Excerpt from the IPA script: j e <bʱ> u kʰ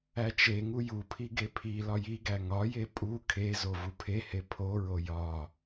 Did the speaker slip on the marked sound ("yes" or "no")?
yes